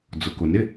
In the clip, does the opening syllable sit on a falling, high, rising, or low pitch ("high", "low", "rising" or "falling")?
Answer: low